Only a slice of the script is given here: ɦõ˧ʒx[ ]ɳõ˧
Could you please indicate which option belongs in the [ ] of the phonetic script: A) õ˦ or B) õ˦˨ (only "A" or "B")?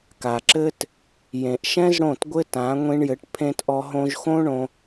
A